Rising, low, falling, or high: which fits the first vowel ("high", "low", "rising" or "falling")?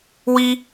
high